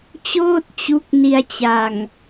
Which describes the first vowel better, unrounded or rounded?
rounded